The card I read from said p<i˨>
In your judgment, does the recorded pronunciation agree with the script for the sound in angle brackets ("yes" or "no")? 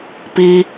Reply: no